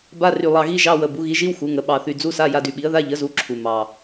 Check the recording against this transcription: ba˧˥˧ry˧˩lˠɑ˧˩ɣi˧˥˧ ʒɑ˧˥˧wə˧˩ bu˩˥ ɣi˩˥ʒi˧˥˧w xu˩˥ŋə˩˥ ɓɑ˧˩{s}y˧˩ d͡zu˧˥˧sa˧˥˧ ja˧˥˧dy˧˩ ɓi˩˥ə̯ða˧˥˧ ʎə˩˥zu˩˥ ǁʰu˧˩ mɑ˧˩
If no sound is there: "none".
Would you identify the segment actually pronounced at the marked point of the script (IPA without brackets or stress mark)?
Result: θ